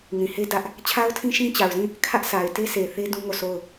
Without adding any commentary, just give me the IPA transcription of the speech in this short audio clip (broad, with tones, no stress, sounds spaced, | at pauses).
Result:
ŋ ĩ˨ h e˦ d ä˦ ʔ | t͡ɕʰ a˦ ʊ̯ tʰ ĩ˦ ʃ ĩ˦ t͡ɕ a˨ ʊ̯ z ĩ˦˨ | kʰ ä˦ ʔ s a˨ ɪ̯ t e˦ sʰ e˨ θ e˦ d ũ˦ ŋ o˦˨ sʰ o˦˨ ʊ̯